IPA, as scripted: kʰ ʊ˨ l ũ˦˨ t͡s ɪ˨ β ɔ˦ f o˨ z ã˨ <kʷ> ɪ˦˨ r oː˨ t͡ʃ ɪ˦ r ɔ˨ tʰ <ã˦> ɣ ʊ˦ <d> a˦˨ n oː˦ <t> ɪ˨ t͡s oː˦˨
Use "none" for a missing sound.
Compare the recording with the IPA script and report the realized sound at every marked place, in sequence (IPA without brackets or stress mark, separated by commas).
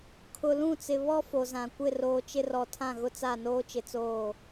kʷ, ã˦˨, t͡s, t͡ʃ